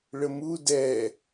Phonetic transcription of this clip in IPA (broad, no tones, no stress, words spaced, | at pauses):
ɭəmu dɛ